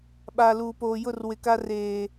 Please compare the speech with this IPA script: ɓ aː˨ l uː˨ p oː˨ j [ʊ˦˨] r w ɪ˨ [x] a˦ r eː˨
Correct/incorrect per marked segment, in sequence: correct, incorrect

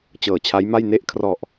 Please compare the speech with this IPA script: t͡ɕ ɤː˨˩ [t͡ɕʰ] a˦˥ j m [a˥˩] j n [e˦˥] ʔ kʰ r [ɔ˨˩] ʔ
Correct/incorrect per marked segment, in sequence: correct, correct, correct, correct

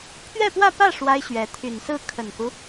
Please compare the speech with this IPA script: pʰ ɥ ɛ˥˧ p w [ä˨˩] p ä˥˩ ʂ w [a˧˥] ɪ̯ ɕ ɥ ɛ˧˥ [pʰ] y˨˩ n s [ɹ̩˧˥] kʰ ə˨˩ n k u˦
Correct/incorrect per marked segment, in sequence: incorrect, incorrect, incorrect, incorrect

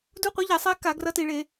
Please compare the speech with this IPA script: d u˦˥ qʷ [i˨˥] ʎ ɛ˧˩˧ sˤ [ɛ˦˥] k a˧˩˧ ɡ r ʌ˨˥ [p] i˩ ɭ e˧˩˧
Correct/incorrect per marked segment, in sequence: correct, correct, incorrect

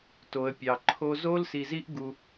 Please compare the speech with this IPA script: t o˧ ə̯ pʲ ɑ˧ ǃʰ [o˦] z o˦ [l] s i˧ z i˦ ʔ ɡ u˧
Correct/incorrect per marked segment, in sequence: correct, correct

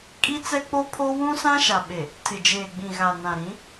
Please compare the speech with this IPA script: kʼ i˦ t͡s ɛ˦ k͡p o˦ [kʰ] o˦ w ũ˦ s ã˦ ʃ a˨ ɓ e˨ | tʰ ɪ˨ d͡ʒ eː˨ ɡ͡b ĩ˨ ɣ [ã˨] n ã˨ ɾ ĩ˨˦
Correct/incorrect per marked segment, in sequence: incorrect, incorrect

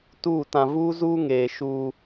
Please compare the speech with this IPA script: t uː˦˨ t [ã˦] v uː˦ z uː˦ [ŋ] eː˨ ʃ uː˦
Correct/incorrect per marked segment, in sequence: incorrect, correct

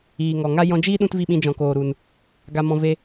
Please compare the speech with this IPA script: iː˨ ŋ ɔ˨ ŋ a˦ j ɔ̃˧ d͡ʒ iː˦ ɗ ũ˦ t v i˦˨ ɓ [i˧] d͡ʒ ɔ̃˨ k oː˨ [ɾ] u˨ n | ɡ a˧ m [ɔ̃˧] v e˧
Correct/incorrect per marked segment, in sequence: incorrect, correct, correct

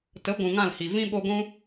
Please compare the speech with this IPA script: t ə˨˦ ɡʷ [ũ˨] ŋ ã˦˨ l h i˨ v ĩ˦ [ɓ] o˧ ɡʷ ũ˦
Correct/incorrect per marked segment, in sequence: correct, correct

